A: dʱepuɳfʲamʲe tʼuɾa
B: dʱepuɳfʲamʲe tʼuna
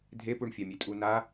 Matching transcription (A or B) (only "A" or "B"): B